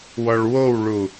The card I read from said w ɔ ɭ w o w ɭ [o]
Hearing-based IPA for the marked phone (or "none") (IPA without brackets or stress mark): u